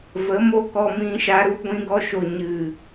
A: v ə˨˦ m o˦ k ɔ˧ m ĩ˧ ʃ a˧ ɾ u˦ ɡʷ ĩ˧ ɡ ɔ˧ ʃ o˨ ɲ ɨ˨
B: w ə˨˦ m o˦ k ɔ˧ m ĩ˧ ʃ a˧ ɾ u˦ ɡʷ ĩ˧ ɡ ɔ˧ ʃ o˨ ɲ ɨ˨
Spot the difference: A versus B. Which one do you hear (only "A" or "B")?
A